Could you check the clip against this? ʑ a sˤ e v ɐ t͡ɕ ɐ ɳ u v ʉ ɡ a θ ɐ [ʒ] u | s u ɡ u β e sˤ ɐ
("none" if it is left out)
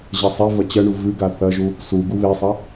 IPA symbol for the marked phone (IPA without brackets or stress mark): ʒ